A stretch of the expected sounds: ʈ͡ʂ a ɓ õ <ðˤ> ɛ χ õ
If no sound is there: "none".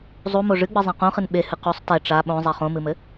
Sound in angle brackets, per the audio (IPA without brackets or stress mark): zˤ